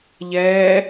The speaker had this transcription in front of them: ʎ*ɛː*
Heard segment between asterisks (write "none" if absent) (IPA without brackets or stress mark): ɛː